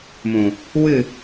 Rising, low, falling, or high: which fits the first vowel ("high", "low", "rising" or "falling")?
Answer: low